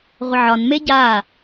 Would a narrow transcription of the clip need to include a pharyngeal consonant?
yes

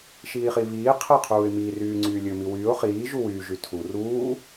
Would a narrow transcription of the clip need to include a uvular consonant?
yes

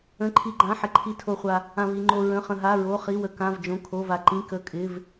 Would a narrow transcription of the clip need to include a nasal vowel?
yes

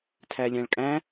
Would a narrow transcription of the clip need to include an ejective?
yes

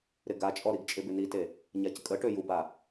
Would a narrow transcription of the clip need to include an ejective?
yes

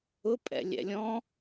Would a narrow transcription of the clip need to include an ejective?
yes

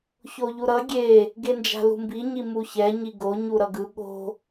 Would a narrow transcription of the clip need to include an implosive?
yes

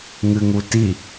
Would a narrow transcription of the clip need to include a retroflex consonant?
no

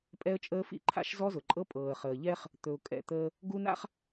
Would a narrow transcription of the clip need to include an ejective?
yes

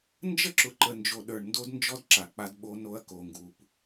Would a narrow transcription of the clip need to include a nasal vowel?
no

